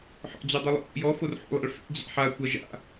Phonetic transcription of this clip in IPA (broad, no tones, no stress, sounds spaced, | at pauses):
ħ ɔ̰ d͡ʑ o dˤ u lˠ o̰ ʔ ṵ j ɔ f o r ħ ṵ lˠ a̰ ɭ f ḛ d͡ʑ a̰ ħ a kʷ a ʒ a̰